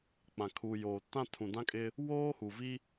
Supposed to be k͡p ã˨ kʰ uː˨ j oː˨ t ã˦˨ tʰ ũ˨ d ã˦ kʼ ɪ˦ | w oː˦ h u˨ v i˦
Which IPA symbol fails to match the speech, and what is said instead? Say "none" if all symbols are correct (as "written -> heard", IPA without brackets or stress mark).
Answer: none